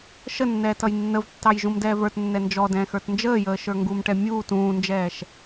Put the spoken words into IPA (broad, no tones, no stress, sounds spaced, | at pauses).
ʃ ə nː ɛː t ʌ j nː ə v tː ɑ j ʒ ũ m d ɛː v ə˞ t nː ɛ n d͡ʒ ɔ d ɛ̃ː x ə˞ t n d͡ʒ əː j əː ʃ ə˞ ŋ ɡ u m ʈ ɛ mʲ uː t ũː n d͡ʒ ɛː ʃ